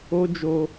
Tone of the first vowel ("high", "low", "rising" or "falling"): high